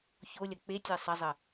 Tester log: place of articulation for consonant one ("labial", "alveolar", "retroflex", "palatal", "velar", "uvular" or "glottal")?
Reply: palatal